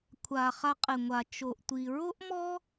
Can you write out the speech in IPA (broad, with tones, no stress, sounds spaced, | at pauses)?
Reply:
kʷʰ a˨ χ a˧ qʼ ɪ˨ ŋʷ a˨ t͡ʃ o˨ ʔ tʷ i˨ ɹ o˦ ʔ m ɔ˦